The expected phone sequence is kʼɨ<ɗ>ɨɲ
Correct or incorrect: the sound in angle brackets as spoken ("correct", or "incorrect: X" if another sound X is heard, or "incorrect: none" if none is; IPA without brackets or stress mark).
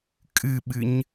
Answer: incorrect: ɓ